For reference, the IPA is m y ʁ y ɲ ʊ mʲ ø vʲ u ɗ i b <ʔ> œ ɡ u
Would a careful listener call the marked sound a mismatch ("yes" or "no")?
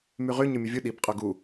yes